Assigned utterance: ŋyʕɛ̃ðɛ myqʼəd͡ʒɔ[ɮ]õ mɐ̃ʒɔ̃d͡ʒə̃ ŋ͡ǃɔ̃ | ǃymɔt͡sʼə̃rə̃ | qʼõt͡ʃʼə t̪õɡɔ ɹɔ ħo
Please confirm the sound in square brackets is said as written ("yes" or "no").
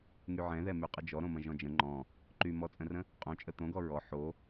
no